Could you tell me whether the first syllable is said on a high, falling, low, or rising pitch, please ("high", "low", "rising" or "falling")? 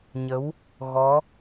rising